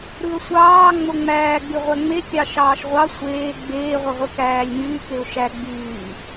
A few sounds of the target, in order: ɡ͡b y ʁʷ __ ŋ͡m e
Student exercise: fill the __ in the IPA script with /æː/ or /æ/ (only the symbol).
æ